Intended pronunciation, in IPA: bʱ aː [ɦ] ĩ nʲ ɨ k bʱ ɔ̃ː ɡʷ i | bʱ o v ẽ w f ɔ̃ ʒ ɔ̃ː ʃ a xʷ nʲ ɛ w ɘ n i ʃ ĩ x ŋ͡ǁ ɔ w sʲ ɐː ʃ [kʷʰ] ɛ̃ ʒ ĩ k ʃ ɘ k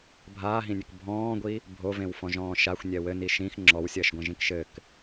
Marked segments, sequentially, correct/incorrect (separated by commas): correct, incorrect